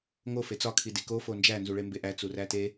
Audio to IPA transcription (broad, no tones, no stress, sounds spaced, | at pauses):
ŋ o f e t͡s ɒ kʰ i d i k o f o n d͡ʒ æ n z u ɭ e m b e ʔ æ t͡s u r æ t e